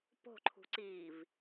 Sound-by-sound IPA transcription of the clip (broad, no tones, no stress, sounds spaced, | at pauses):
p o̤ ǃʰ ṳ ǀ iː v